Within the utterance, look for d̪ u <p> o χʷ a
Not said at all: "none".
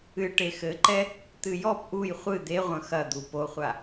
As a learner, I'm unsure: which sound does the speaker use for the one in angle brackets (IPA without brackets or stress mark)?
p